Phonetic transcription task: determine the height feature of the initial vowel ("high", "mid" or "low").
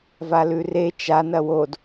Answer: low